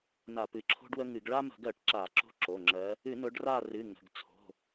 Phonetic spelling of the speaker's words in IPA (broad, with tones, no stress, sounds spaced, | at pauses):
n a˧˩˧ p ɨ˩˧˩ ǁʰ o̤˦ ɖ w ə˦ ŋ ɨ˧˩˧ ɡ ɭ a˦ m ə̤˧˩˧ ɡ ɜ˧˩˧ ʈ ǁ a˧˩˧ ǁ o̤˦ ǁ o˩˧˩ ŋ͡ǁ ɜ˨˦ | ɨ˧˩˧ n ʊ˨˦ ɖ r a˦˨ r ɨ˩˧˩ ŋ ə̤˩˧˩ ɡ t͡sʰ o̤˩˧˩